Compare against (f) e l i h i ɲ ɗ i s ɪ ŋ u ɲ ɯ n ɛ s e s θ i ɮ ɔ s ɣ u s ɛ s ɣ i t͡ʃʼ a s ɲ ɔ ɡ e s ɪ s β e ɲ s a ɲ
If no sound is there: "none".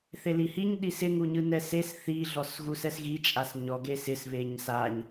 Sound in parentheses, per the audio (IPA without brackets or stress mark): θ